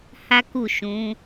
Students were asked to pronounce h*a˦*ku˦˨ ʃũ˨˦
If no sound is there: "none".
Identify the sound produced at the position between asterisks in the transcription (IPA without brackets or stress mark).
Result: a˦